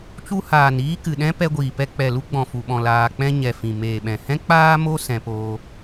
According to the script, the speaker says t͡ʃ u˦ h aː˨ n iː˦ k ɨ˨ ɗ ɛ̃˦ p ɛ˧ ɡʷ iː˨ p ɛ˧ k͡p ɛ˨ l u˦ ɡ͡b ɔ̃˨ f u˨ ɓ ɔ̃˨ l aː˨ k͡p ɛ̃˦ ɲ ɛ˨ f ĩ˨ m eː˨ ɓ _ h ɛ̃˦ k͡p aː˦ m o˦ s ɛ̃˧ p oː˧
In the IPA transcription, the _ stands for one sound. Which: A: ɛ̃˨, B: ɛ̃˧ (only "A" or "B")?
A